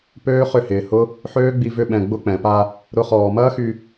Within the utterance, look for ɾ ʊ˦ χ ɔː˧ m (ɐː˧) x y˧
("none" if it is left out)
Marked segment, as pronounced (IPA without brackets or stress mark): ɐː˦